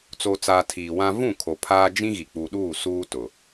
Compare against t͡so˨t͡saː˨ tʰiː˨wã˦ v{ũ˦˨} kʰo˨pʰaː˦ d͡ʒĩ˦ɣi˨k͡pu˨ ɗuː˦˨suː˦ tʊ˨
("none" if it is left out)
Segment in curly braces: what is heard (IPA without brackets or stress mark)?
ũ˦˨